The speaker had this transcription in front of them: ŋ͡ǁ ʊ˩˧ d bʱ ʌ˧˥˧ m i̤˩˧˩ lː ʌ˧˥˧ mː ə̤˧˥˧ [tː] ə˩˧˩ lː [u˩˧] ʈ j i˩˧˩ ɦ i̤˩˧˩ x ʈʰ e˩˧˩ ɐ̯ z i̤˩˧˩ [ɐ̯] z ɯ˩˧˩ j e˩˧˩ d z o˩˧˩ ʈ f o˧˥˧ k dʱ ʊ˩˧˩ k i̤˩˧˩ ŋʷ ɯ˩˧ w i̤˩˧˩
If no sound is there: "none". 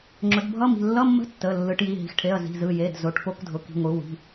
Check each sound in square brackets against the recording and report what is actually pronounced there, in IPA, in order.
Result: tː, ɯ˩˧, none

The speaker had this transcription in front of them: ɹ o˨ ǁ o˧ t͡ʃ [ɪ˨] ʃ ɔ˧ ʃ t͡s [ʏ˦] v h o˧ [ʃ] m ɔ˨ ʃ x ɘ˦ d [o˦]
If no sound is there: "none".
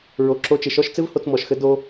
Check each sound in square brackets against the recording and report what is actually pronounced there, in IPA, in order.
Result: ɪ˨, ɪ˦, t͡s, o˧

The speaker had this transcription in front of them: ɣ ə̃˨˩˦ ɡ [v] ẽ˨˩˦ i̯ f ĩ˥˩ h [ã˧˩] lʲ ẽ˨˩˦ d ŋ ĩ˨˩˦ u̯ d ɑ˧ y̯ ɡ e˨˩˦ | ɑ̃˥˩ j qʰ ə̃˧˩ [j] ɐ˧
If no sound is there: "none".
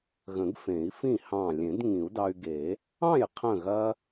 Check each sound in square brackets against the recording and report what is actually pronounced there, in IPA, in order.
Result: f, ɑ̃˧˩, ɣ

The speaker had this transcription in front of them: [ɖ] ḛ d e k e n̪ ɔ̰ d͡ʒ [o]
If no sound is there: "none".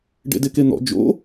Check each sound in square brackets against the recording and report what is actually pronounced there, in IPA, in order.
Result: ɖ, o̰

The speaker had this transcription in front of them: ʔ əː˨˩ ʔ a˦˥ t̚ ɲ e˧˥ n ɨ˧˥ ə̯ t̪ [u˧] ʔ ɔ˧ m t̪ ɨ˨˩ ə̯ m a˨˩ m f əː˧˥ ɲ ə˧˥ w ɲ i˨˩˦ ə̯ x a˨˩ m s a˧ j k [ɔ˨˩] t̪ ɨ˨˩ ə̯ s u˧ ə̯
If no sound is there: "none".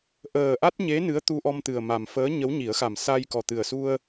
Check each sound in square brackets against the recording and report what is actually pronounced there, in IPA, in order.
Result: u˧, ɔ˨˩

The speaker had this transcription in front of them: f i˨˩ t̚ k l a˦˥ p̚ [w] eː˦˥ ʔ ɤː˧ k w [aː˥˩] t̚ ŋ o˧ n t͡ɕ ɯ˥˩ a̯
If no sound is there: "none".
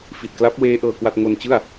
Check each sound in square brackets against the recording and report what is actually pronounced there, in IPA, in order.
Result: w, a˥˩

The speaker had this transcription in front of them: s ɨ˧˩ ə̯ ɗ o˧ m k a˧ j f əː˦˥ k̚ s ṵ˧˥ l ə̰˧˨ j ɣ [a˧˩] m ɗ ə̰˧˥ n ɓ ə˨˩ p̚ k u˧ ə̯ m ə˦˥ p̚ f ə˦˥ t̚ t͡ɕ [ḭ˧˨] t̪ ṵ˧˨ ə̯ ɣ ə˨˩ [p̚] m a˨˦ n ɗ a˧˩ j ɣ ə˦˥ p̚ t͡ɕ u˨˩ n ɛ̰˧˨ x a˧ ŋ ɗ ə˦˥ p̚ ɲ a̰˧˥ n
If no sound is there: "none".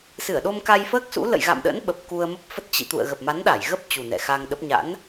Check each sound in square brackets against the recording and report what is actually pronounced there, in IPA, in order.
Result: a̰˧˨, ḭ˧˨, p̚

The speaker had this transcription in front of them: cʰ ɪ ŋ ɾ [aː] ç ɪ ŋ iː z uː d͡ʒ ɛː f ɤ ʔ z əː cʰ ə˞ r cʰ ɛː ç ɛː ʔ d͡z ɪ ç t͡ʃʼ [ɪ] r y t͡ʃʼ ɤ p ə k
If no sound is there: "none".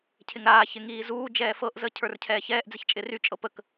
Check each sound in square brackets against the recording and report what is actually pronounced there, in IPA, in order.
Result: aː, ɪ

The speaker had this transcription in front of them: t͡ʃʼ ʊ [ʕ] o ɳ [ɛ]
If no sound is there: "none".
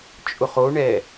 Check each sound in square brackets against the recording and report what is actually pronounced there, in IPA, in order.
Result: χ, ɛ

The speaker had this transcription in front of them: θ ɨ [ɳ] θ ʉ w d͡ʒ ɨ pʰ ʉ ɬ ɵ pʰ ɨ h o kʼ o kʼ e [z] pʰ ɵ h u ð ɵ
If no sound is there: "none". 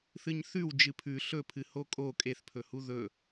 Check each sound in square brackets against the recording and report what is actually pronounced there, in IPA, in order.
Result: ɲ, θ

